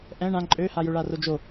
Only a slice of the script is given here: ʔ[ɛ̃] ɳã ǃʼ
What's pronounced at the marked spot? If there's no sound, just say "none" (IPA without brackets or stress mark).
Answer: ɛ̃